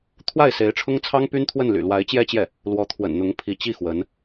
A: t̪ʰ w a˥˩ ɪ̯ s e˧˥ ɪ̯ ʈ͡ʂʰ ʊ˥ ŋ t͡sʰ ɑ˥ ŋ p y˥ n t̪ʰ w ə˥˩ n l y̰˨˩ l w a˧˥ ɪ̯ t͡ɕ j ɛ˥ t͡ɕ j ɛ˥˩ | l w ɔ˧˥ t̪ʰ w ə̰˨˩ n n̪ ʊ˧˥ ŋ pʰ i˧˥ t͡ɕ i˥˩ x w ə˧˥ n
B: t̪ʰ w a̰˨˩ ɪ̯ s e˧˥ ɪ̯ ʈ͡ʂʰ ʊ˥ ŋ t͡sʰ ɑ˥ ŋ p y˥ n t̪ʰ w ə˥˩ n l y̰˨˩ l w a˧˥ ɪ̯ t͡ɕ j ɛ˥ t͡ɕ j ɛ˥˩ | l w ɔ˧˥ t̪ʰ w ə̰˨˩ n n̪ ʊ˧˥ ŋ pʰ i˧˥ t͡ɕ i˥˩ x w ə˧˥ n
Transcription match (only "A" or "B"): A